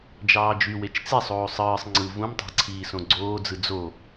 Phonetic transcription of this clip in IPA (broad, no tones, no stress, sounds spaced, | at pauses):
d͡ʒ ɑː d͡ʒ y w e t͡ʃ t͡s e sˤ oː sˤ ɯː sˤ ŋ͡ǀ ɯ v ũ m tˤ æ̤ ǀʰ iː s õ ɡ͡ǀ oː d͡z ɯ d͡z o